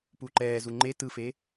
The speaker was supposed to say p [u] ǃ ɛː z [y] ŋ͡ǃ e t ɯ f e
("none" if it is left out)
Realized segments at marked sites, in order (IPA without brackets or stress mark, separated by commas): u, u